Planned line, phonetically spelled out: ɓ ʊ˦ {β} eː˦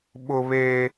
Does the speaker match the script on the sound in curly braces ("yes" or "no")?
yes